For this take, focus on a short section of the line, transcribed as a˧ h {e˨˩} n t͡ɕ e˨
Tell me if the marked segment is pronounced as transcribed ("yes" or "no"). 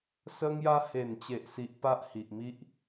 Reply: yes